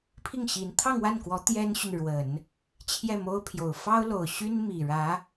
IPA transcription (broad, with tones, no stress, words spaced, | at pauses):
pʰi˥˩ŋɕi˧˥n t̪ʰɑ˥˧ŋwa˥˩nkwɔ˧˥ t̪jɛ˥nɕy˨nɻwə˨˩˦n | t͡ɕʰjɛ˥˩mo˥ʊ̯pʰjo˨˩ʊ̯ fɑ˥ʊ̯lo˨˩ʊ̯ɕy˥n mi˨˩ɻä˧˥